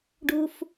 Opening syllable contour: low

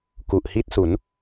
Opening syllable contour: low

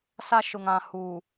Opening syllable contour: high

